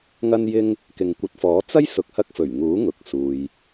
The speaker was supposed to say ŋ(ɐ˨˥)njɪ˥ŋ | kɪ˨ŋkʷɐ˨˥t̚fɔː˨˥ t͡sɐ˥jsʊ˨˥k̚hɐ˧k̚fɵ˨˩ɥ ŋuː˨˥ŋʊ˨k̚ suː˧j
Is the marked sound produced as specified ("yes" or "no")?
no